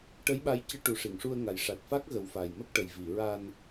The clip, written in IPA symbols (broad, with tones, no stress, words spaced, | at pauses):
ʈə˧˥jɓa˧˥jcɨ˧˥ ʈu˨˩˦ʂi˨˩˨ŋʂu˧ə̯ŋa˨˩j ʂa˨˩t̚fa˦˥k̚ɣə˨˩˦w fa˨˩jmə˦˥k̚ʈə˨˩j vi˨˩˨ɹa˧n